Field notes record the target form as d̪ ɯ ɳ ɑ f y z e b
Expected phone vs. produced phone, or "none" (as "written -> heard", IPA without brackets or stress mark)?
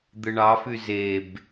none